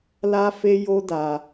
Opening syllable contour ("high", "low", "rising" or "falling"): high